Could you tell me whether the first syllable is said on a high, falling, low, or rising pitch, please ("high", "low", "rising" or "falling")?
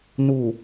low